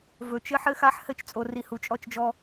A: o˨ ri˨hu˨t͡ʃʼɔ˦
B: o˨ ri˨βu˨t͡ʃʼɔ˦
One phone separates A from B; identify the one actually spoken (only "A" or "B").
A